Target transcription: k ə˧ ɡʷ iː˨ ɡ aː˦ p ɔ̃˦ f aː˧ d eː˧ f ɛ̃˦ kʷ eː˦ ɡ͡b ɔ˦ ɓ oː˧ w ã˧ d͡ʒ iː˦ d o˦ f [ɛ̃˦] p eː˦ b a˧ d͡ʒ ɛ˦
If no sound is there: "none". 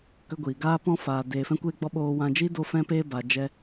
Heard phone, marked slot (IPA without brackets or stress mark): ɛ̃˦